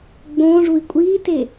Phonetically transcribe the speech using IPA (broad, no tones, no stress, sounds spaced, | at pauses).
ɡ͡b õː ʐ u i̯ kʷʼ iː t e